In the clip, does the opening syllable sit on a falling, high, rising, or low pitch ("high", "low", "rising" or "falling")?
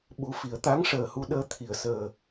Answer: low